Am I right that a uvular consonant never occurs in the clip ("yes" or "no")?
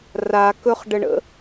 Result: no